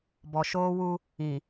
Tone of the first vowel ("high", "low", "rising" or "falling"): low